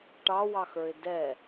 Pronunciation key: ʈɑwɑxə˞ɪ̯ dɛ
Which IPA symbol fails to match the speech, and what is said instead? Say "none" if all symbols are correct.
none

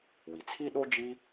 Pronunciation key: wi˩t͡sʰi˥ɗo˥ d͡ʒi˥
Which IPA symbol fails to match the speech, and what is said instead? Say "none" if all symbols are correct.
none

